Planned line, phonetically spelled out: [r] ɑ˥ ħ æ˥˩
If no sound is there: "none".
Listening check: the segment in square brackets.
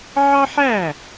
ʕ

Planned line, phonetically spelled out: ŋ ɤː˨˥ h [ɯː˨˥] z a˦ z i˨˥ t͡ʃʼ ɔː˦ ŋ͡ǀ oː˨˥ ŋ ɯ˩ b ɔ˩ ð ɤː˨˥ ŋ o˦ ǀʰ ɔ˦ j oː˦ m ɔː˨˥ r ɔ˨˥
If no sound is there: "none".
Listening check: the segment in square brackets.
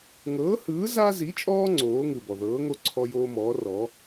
ɯː˨˥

